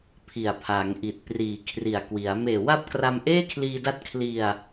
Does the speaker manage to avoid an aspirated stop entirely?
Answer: no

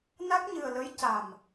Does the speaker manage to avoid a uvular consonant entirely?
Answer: yes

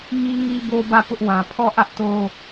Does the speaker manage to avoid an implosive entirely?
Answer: yes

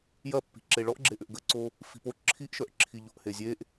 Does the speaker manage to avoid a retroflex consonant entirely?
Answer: no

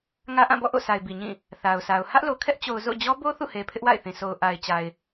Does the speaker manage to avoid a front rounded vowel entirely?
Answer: yes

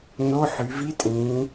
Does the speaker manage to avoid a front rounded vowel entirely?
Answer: no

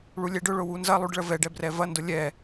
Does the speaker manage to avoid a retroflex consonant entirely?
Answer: no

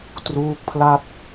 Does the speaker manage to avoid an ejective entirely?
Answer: yes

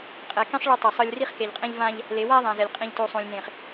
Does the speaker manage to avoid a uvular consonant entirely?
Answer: no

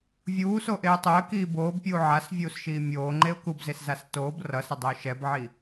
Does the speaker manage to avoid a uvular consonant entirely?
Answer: yes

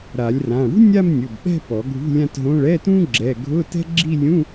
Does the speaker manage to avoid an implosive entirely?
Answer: no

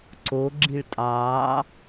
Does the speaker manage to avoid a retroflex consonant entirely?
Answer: no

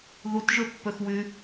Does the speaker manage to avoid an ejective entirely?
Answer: yes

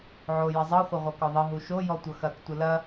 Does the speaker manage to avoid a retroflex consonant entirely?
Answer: yes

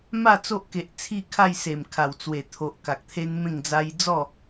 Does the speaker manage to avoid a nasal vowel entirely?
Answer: no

